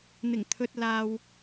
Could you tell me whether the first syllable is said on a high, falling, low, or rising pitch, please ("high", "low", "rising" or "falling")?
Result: low